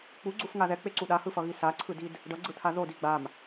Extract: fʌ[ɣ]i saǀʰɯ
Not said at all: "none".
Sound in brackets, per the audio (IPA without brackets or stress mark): ɣ